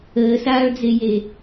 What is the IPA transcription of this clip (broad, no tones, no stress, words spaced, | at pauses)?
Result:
əːsaːɭd͡zeje